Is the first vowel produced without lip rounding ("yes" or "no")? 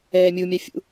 yes